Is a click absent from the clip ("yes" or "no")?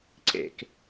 no